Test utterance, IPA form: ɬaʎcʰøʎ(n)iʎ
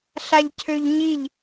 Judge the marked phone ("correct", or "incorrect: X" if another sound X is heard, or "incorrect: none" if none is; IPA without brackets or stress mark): incorrect: ɲ